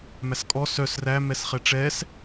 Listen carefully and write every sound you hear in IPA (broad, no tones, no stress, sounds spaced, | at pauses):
m æ s kʼ ɔ s œ s r æ m ɛ s χ ɛ ʈ͡ʂ ɛ s